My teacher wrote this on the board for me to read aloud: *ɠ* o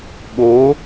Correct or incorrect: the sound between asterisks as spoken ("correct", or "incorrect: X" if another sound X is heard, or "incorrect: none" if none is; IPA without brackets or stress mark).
correct